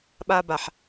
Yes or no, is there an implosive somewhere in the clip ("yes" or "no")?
yes